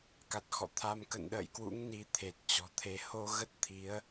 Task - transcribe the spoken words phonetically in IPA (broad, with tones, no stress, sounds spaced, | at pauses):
k a˨˩ t̚ x ɔ̰˧˨ t̪ʰ a˧ m k ə̰˧˨ n ɗ ə̰ː˧˨ j k w ṵ˧˥ ŋ n i˨˦ t̪ʰ e˨˩ t̚ t͡ɕ ɔ̤˨˩ t̪ʰ e˨˦ h o˧ ɣ ə˦˥ t̚ t̪ʰ i˨˦ ə̯